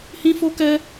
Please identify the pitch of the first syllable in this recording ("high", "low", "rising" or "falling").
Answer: high